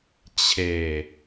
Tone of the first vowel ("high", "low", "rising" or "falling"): low